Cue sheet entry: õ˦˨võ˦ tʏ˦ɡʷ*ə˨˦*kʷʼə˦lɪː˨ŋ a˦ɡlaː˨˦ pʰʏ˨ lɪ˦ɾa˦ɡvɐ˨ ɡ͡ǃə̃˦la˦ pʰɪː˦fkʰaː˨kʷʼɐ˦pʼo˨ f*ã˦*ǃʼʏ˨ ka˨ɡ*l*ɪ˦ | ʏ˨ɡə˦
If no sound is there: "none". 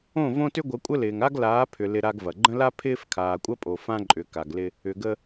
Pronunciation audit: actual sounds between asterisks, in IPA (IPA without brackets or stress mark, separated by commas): ə˨˦, ã˦, l